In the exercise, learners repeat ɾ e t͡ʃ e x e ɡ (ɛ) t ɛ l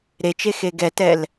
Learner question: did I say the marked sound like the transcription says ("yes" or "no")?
yes